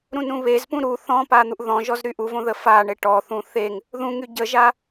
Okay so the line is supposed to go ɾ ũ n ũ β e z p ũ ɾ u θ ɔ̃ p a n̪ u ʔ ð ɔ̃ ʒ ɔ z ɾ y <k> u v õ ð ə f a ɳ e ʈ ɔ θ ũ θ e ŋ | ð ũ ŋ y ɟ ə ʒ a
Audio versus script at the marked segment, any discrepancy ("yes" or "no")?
yes